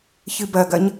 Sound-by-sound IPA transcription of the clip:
ç ɨ b ɐ ɡ ɐ ɲ

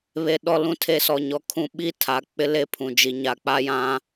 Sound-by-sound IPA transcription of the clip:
β e˨ ɗ ɔ˨ l ũ˨ tʰ e˨ s ɔ˨ ɲ ɔ˨ kʰ ũ˦ ɓ i˦ tʰ a˨ k͡p ɪ˦ l e˦ pʰ ũ˨ d͡ʒ i˨ ɲ a˨ k͡p a˦ j ã˦

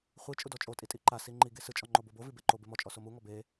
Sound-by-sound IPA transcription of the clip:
χʷ i t͡ʃʼ u d ɔ t͡ʃʼ o tʼ i tʼ i ǃ a s i ŋ͡ǃ i ɡ e s ɯ t͡ʃʼ ɔ ŋ͡ǃ o b o b o v i b e ǃ o b e m ɔ t͡ʃʼ ɔ s o m u ŋ ɔ b e

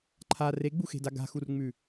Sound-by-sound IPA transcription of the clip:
ǃʰ a r e ɡ͡b u x e̤ d a ɡ a̤ x u r ŋ͡m ʉ

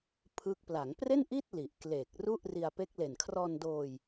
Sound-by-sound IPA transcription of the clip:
pʰ ɯ˦˥ k̚ p l a˩˦ ŋ p r e˥˩ n ʔ i˥˩ t̚ l i˨˩ ʔ k l e˨˩ k̚ r u˥˩ ʔ r i˧ a̯ p e˦˥ k̚ l e˨˩ n kʰ r ɔː˧ n d oː˧ j

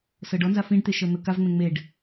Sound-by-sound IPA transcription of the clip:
s ɤ ɖ ɔ n z a f ĩ ɖ t̪ e ʃ ɤ n̪ ɤ k a v ŋ͡m ẽ ŋ͡m e ɖ

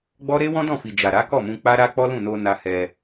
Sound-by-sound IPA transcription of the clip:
ɡ͡b ɔ˦ ɾ e˦ w ɔ̃˦ d ɔ̃˦˨ f i˨ d͡ʒ a˨ ɾ a˨˦ k ɔ˦˨ m ũ˧ k͡p a˦ ɾ a˦ k͡p ɔ˦ l ũ˦˨ n o˧ n a˧ h ɛ˧

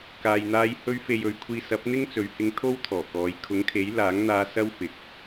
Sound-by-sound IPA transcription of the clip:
k aː˨ j n̪ aː˧ j h ɵ˧ ɥ f e˨ j ɵ˨˥ ɥ kʷʰ iː˧ s ɐ˨˥ p̚ n̪ ɪ˥ ŋ t͡s ɵ˨ ɥ h ɪ˧ ŋ t̪ʰ o˥ w t̪ʰ ɔː˨˩ k ɔː˨˧ j kʰ ʊ˨˥ ŋ kʰ e˨˥ j l aː˨˥ ŋ n̪ aː˧ s ɐ˥ w f ɪ˨ k̚

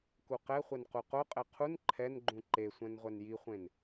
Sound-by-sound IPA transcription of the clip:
k u q ɛ χʷ ɛ n q u q o qʼ ɛ qʰ u n ǃʰ ɛ n ɡ͡ǃ ũ ǃ e sʷ ɛ̃ n ʁʷ ɛ n j i χʷ ẽ n

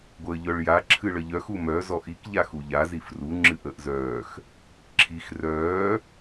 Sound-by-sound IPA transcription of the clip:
ɡʷ əː ʎ œ ɭ j a ǁʰ ɨ ɭ ə ʎ œ x u m œ z ɔ ʔ i k ʎ a x u ʎ a z i f r u ŋ͡ǁ ɨ ʔ əː ʔ z œː x | ǁʰ i x r œː

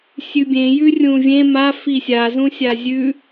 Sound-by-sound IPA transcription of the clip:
sʲ ʉ bʲ ẽ j ʉ rʲ ũ vʲ ẽ m a f i sʲ a z ũ sʲ a zʲ ʉ

